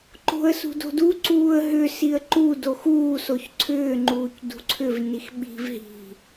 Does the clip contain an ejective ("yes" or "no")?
no